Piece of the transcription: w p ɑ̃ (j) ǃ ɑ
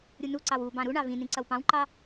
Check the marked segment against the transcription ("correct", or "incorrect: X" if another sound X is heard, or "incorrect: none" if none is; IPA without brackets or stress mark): incorrect: w